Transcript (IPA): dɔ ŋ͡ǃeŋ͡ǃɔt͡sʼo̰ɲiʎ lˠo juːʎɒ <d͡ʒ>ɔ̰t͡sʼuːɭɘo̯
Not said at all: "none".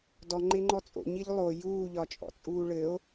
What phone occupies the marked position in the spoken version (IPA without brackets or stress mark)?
t͡ʃʼ